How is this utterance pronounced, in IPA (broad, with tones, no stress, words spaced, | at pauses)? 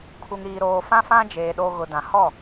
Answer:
kʰu˨ŋɾiː˨ɾoː˨ fã˦fã˦d͡ʒeː˨ ɗo˨ ɣʊ˨dã˨ hɔ˦˨